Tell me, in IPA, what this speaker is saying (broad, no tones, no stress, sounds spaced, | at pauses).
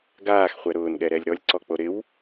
ɡ aː x χʷ ɛ ɾ ʊː n ɠ ɛ ɾ ɛ lʲ ɾ ɔ lʲ ǀ ɔ k͡p o ɾ ɪ w